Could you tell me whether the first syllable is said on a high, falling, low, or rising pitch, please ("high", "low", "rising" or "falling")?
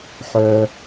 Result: high